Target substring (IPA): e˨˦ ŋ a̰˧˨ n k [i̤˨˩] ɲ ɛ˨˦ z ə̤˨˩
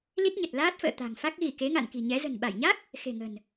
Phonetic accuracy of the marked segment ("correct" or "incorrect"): correct